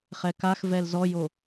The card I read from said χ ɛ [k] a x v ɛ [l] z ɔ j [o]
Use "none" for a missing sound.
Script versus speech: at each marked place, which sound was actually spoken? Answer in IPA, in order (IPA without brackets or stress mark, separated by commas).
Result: k, l, o